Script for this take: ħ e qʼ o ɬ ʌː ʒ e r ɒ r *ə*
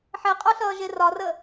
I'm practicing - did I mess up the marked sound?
no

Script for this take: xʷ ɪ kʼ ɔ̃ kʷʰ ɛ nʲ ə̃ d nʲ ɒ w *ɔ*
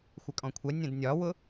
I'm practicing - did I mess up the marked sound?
yes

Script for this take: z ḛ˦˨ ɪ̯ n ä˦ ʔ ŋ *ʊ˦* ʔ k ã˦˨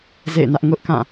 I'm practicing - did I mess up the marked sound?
no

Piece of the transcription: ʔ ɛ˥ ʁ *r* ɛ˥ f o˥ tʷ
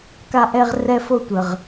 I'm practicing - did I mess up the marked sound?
no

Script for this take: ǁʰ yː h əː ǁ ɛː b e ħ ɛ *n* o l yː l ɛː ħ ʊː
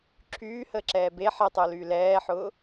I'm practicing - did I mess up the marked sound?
yes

